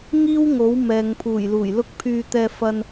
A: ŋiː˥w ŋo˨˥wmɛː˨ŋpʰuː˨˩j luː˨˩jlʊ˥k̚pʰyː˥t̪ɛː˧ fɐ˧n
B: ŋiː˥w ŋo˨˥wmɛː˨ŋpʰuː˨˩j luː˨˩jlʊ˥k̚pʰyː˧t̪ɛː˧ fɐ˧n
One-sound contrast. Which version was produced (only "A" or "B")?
B